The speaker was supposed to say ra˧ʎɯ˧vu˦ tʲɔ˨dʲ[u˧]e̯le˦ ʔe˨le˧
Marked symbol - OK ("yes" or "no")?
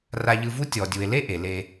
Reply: no